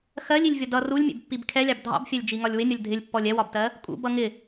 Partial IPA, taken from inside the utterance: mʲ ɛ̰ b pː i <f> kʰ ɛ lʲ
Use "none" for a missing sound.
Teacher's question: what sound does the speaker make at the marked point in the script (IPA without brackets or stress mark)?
b